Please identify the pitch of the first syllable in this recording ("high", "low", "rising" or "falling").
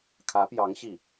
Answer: rising